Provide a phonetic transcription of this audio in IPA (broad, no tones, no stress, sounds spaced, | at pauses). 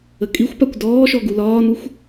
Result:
ə kʼ i xʷ p a kʷ d ɔː ʃ ɔ ɡ u l ɒː n u xʷ